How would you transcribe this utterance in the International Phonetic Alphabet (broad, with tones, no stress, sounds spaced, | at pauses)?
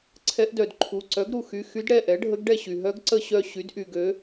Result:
ǀʰ ɛ˧˥ ʔ d œ˩ d ǃʰ u˩˧˩ ǀ œ˩˥ ɡ ɾ u˩ x y˩˧˩ x y˧˥ d ɽ ɛ˩˧˩ ʔ ɛ˩˥ ɖʱ ə˧˥ ɡ ɖ ɛ˦˨ ɕ y˩ ɦ œ˧˥ ɡ ǀ ə˦˨ ɕ œ˦˨ ɕ y˩˥ d ʔ y˩ ɡ ø˩˥